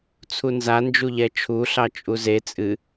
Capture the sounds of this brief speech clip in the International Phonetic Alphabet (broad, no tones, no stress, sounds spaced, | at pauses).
t͡sʰ u n z a n d͡ʒ u ʎ ɛ t͡ʃʰ u ɬ ɑ t͡ʃʼ u z e t͡sʼ ɨ